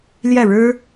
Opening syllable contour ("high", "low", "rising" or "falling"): falling